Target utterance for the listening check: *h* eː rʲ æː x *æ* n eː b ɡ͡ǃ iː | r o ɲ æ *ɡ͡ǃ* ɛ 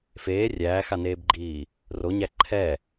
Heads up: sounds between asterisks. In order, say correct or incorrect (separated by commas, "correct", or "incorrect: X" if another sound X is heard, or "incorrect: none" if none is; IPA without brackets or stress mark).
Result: incorrect: f, incorrect: a, incorrect: ǃʰ